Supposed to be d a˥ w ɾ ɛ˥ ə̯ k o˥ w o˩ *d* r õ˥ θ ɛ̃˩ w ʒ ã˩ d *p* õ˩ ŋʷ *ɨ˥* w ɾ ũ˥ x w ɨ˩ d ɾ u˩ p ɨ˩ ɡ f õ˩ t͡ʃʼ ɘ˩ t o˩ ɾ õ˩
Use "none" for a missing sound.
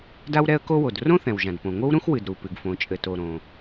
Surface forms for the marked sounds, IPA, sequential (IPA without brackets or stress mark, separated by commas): d, p, ɨ˥